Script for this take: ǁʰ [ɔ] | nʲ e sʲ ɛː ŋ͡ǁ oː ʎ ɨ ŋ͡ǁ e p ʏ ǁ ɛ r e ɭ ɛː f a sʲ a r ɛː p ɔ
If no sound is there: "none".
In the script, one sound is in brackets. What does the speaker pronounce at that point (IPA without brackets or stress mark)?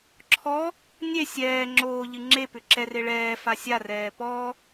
ɔ